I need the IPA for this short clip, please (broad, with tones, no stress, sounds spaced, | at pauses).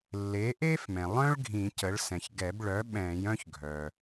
lː eː˩˥ ʔ eː˥ f m ɛ̃˩ lˠ œ̃˥ ɭ ɡʱ ĩ˨˩˦ c ə˩˥ ɭ s ɛ̃˩ ç ɡ ɛ˨˩˦ b ɭ œ˩˥ ɓ ɛ̃ː˨˩˦ j œ̃˥ ç ɡʱ œ˩